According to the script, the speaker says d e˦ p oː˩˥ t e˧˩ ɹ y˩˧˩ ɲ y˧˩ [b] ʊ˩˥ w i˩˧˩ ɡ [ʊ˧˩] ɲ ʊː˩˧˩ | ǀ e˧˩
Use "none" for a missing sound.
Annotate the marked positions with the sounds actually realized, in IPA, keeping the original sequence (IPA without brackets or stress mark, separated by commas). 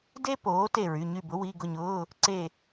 b, ʊ˧˩